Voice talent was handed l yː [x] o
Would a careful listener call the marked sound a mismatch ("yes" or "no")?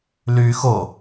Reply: no